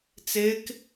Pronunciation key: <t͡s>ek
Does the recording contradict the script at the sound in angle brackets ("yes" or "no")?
no